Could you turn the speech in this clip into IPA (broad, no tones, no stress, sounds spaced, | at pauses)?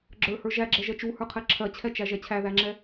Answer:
ɡ͡ǁ ə˞ h ə˞ ʒ æ ɡ͡ǁ ɛ ʒ ɛ t͡ʃ u h ə˞ qʰ ɛ ǁʰ ɜ t͡ɕʰ ɛ t͡ʃ æ ʒ ɛ t͡ɕʰ æ ð æ ŋ͡ǁ ɛ